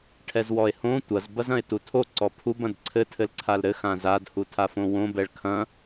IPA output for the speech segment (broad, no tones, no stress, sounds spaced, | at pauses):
ʈʰ ɛ z w ɔ e̯ h õ tʷ ɐ z b ɐ z ɐ̃ e̯ t u tʰ o ǀ ɔ pʰ u b ɐ̃ d ǀʰ ɘ tʰ ɘ l ǀʰ a l ɾ ɘ x ã z a d h u tʰ a f õ w õ b ɛ ɭ kʰ ɐ̃